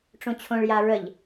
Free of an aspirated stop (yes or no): no